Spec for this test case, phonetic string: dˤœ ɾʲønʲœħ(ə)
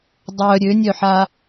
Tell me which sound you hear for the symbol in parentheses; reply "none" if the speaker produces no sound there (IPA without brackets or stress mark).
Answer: a